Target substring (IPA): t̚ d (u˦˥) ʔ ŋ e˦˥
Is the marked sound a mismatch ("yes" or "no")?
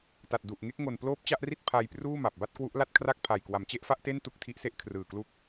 yes